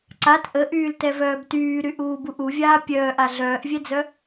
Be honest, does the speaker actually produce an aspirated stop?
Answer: no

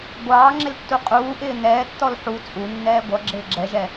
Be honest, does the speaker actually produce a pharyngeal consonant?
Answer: yes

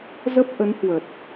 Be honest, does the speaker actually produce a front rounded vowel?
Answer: no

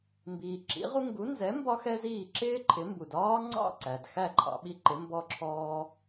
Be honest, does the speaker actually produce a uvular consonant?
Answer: yes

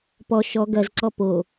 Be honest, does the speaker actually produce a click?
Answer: yes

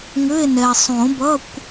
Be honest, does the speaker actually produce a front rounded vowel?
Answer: yes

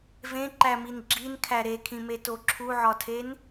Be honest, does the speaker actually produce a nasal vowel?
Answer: yes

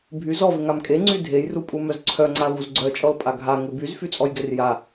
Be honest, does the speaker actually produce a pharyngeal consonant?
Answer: no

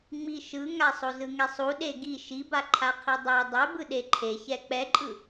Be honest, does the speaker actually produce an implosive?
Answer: yes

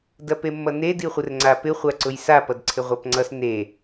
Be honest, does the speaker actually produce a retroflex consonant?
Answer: no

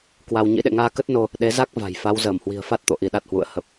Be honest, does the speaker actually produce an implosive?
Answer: yes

